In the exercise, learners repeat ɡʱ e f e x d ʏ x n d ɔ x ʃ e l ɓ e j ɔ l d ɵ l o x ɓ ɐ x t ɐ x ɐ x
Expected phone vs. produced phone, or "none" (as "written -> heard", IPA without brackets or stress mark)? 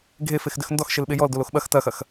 ɵ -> o